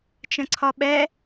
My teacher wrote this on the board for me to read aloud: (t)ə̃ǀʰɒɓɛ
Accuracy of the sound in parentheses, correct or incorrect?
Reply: incorrect: t͡ʃ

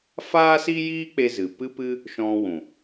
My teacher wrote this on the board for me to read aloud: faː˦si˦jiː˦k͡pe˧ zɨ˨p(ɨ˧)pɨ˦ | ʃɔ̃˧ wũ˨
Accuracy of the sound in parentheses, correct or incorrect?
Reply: incorrect: ɨ˦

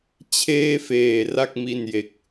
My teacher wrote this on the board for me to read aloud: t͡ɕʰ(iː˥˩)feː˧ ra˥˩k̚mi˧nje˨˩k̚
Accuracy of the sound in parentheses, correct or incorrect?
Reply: incorrect: eː˥˩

